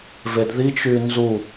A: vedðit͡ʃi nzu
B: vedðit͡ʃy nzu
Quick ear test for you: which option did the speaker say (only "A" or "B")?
B